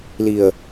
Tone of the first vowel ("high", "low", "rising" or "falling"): low